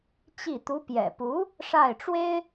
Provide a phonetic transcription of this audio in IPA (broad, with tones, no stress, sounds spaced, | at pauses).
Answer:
t͡ɕ i˥˩ t̪ u˧˥ p j ɛ̰˨˩ p u˧˥ | ʂ a˥˩ ɪ̯ ʈ͡ʂ w e˥ ɪ̯